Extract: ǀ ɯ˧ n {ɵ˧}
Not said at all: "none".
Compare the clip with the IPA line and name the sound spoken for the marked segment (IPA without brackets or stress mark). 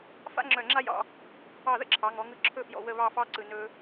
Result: ɵ˧